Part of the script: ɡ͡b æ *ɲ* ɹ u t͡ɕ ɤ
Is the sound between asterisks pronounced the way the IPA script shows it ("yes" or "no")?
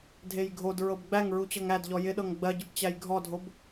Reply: no